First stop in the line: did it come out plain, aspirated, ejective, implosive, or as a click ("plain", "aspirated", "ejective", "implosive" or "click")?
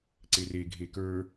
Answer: click